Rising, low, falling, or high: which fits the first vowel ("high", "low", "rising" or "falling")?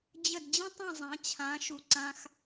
falling